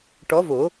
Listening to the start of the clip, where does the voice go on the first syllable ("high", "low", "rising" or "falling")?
rising